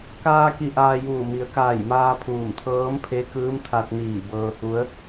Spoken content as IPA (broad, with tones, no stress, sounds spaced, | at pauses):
k aː˧ k i˧˩ ʔ aː˧ j uː˧˩ m i˩˧ ə̯ k aː˧˩ j m aː˧ pʰ uː˧˩ m t̪ʰ ɤː˧˥ m pʰ e˧˥ k ɯː˧˥ m t̪ʰ a˧ t̚ n iː˧˩ b ɤː˧ h u˧˥ ə̯